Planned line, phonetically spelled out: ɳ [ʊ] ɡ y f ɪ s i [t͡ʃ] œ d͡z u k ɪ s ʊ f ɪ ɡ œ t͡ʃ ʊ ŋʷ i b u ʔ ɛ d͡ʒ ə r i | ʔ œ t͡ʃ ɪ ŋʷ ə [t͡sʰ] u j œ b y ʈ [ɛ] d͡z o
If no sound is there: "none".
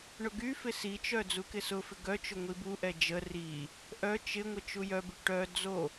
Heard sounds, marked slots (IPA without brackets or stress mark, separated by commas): ʊ, t͡ʃ, t͡ʃ, œ